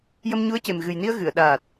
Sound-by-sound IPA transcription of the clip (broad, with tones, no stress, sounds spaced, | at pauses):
j ə˧ m ɲ u˧˥ ə̯ c e˨˩ m ɣ ɨ˨˩ j n i˧ ə̯ ɣ ɨ˨˩˨ ə̯ ɗ aː˨˩ t̚